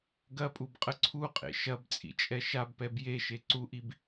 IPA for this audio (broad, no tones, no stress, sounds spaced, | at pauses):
ɡ ɐ pʼ u b qʼ ə ǀʰ u qʼ ḛ ʃ ɐ b t͡sʼ ḭ t͡ʃʼ ɛ ʃ a b p ɛ b j e ʃ e ǀ u ʔ i b